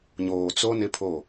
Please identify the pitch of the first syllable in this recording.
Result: low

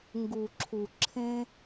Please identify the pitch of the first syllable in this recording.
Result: low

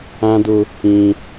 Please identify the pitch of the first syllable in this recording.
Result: high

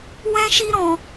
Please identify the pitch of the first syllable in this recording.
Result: high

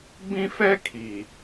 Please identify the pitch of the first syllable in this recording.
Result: high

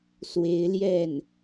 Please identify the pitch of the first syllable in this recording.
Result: rising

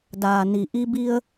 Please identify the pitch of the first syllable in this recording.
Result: low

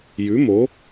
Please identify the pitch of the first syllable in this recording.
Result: rising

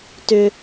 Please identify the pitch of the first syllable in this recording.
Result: low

